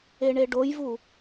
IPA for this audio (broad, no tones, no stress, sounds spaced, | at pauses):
e ɳ e ɖ o j v u